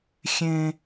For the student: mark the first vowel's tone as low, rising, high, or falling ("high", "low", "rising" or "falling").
high